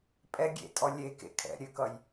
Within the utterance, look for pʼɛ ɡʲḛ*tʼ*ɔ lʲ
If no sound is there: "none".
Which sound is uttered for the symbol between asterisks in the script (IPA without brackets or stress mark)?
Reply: tʼ